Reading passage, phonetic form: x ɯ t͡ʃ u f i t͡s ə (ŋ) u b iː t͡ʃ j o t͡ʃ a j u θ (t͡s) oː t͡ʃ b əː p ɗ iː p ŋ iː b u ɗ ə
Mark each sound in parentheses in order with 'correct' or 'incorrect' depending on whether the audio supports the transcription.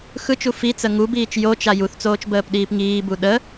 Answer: correct, correct

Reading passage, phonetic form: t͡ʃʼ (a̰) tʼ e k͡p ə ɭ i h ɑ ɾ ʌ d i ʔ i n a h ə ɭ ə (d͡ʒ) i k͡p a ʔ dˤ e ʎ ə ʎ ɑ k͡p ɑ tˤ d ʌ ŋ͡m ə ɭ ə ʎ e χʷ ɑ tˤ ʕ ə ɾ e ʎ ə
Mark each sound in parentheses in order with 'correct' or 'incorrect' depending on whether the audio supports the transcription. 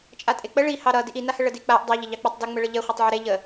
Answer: incorrect: a, incorrect: d

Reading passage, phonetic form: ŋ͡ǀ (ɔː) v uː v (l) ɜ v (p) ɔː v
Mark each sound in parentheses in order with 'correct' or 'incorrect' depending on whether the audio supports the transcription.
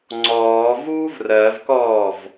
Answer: correct, incorrect: r, incorrect: k

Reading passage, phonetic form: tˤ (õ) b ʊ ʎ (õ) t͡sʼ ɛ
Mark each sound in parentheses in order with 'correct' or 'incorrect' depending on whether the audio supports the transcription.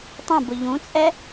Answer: correct, incorrect: ũ

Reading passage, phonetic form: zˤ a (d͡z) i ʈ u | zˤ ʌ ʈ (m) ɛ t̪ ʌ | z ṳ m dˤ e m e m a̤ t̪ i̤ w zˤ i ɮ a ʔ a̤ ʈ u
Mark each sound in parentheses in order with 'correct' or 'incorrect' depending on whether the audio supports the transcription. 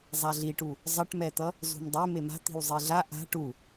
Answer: incorrect: ɮ, correct

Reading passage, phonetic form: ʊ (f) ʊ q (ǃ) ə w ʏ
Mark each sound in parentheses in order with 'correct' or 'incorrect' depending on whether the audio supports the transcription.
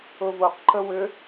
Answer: incorrect: v, correct

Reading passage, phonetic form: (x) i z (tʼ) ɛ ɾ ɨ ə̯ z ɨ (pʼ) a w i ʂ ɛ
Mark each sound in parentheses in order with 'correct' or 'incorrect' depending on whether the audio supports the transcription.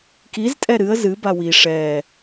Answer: incorrect: k, correct, incorrect: b

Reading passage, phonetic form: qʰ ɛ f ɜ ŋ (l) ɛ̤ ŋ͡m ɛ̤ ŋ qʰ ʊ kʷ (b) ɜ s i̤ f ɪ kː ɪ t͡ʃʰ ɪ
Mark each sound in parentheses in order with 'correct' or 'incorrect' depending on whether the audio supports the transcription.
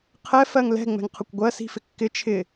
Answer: correct, incorrect: ɡʷ

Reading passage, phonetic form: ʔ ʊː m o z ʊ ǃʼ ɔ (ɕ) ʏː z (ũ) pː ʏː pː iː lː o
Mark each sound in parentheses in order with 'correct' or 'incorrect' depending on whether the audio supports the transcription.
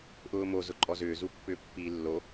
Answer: incorrect: z, incorrect: u

